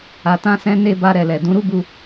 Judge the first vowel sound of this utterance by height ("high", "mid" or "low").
low